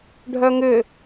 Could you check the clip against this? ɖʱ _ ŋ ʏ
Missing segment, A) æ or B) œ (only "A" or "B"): B